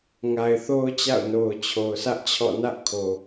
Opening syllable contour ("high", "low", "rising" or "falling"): low